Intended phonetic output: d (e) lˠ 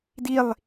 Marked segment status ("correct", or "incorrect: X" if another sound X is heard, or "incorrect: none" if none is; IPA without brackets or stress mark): incorrect: i